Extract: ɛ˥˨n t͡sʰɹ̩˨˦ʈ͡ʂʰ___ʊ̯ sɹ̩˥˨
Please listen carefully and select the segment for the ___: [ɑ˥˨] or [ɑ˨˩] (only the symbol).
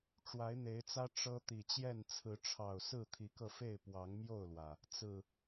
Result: ɑ˨˩